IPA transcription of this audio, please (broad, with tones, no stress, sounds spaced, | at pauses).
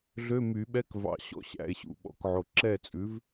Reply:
ɮ ø˧˥˧ m y˨˩˦ ɓ ɛ˧˥˧ k v ɑ̰˨˩ ɕ ɔ̰˧˥˧ ɕ æ̰˨˩ e̯ ɕ ṵ˨˩ ɓ ɔ̰˩˥ k ʕ o˨˩ ǁ ɛ˥˩ t͡sʼ ʉ˩˥ v